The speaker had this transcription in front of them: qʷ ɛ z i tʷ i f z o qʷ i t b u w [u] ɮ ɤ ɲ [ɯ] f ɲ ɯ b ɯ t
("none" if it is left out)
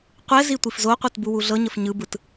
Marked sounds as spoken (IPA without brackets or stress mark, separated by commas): u, ə